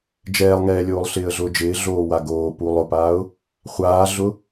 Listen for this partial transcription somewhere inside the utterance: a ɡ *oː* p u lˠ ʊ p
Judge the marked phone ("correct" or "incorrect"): correct